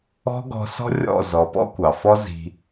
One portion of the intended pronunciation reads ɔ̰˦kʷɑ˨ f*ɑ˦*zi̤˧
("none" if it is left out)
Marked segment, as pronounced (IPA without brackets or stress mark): ɔ˦